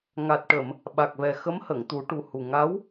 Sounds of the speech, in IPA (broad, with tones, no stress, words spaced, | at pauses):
ŋa˨˩t̚ʈə˨˩˨m | ɓa˨˩k̚vɛ˨˩ xə˧˥m hə˨˩˨ŋt̪u˨˩˦ʈu˨˩hu˨˩ ŋa˧˥w